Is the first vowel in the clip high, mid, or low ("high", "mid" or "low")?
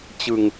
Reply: high